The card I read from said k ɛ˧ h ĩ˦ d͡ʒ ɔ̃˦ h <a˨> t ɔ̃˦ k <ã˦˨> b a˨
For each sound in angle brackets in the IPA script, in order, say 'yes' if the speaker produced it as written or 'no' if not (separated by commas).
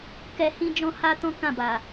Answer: no, yes